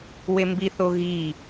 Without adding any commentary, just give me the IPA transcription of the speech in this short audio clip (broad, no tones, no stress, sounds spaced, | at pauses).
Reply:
w e m b i θ o ɣ i